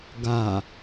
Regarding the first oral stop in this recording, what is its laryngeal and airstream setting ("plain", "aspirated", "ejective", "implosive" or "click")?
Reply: plain